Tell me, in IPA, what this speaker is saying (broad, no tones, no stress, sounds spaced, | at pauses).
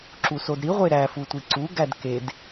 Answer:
ǁ u s o d ɾ i ʁʷ e ɾ æ f u tʷ i ǀ u ɡ æ d k e d